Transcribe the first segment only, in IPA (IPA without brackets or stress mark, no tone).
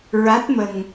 ɹ